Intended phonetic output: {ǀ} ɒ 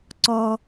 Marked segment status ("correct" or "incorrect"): correct